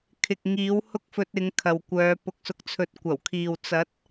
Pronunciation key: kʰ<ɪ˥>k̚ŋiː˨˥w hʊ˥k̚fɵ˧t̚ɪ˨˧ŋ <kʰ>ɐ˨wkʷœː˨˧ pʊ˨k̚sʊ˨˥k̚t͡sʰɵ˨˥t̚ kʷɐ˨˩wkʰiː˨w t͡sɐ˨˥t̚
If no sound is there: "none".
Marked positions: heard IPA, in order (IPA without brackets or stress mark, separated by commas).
ɪ˨, kʰ